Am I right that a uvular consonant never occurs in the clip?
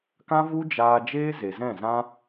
yes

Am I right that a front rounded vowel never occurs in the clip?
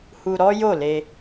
yes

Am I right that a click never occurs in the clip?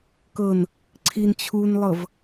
no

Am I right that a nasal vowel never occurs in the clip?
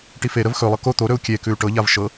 yes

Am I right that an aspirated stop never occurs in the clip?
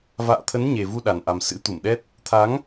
no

